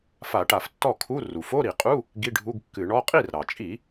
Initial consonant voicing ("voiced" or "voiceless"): voiceless